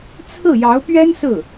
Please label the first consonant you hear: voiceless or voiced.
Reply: voiceless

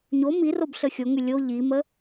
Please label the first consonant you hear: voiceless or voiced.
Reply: voiced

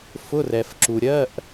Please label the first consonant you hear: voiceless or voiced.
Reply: voiceless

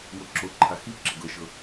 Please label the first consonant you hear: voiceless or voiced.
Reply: voiced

